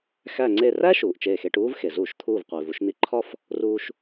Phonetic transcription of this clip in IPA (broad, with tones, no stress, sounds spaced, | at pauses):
x æ˥˧ ŋ͡ǀ e˥˧ r æ˥ ʃ uː˩ ʔ t͡ʃ eː˧˩ x e˧ ʈ uː˥ v x e˩ z uː˧˩˧ ʃ t̪ʰ uː˧˩ v qʷ iː˩ v u˧ ʃ n̪ i˧ ǃʰ ɒ˥˧ f | r uː˧ ʃ